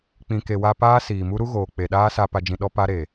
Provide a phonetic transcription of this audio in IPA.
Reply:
k͡pĩ˨ke˨wa˧paː˦ siː˨mu˦ ɾu˦ɣoː˨ k͡pe˨ɗaː˦ sa˧ pa˧d͡ʒĩ˧ ɗɔ˦ pa˦ɾe˨

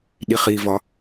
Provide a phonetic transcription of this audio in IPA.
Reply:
ɗiχivɒ

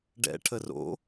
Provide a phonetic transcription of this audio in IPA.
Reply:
ɖɛ̰ ʈʰəro̰

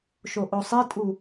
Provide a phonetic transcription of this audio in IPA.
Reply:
ʃoʔosˤetʼu

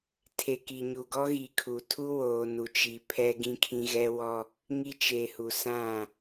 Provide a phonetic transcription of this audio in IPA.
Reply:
tʰe˨ki˨ɲu˨ ɡɔ˦ ɣi˨kʰu˨ tʰu˦ woː˨nu˨t͡ʃi˨ pʰɛ˦ɡĩ˦kʰĩ˦ ɣɛ˦wɔ˦ | ŋi˦t͡ʃe˨ hu˨sã˦˨

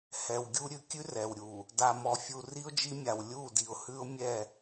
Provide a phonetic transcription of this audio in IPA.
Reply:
hɛ˨wɡʲu˦ ɾʲʉ˨kʲʉ˦ rɛ˨wɾʲu˨ | da˨mɔ˨fʲu˨ ri˦ʊ̯d͡ʒi˦mʲa˨w lʲu˦˨di˨ʊ̯hʉ˦ʊ̯ mʲɛ˦˨

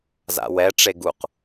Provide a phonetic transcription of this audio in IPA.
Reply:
za̰wɛ ʈ͡ʂeɡuq

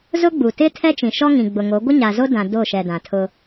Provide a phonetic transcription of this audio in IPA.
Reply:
zʊ˦ɡ͡bu˨ tɪ˦ tʰɛ˦t͡ʃĩ˨ ʃɔ˦ŋĩ˨ɡ͡bʊ˨ŋo˨˦ ɡʷɪ˦ɲa˨zo˦ dã˦ do˦˨ʃɛ˨dã˨tʰʊ˦

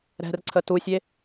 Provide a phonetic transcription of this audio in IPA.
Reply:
ɾɛ̤rǀʰə tusʲe

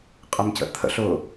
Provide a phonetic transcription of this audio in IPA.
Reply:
qʼəmcə̰t̪ʰə̰ɬ ʊ

